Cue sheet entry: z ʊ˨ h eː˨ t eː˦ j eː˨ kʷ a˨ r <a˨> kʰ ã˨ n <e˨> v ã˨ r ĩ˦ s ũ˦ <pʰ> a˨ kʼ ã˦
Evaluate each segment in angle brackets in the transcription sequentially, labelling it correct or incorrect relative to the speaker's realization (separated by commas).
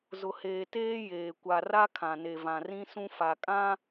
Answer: incorrect, correct, incorrect